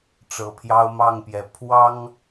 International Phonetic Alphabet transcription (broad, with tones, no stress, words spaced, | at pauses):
ʈ͡ʂɤ˨˩pʰjɑ˦ʊ̯mɑ˥˨ŋpjɛ˨˩ pʰwɑ˦ŋ